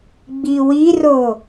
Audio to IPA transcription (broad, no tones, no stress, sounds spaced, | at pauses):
ɡ͡b i w i r o